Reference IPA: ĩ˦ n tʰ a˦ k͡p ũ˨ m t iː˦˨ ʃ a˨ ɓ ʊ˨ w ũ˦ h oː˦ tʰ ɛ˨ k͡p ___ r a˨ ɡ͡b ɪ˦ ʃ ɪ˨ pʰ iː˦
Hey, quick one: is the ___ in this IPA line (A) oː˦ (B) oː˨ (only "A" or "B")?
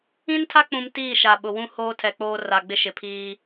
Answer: A